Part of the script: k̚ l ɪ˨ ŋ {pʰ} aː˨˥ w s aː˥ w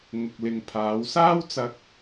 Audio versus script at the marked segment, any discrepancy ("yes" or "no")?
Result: no